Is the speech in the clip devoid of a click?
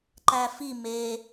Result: no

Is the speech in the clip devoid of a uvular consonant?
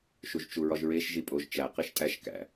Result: no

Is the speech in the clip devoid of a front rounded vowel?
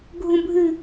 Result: yes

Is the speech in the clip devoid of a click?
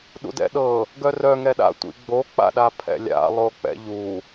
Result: yes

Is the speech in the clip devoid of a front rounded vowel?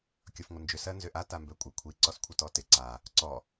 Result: no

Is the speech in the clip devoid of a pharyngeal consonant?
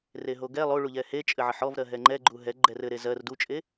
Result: no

